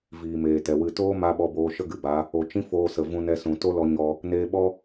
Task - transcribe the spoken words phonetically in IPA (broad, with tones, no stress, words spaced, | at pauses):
viː˨meː˨tɛ˨ wɨ˨toː˦ma˧ ɓɔ˧boː˧ʃə˦ ɡɨ˨ba˨˦ | o˨t͡ʃĩ˦ foː˧sə˨ vũ˧nɛ˧sũ˨ to˦lɔ˧ ɲɔ˧ | neː˧ɓɔ˦